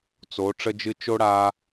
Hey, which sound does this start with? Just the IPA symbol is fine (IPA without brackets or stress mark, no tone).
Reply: t͡s